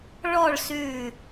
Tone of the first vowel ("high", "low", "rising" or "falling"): falling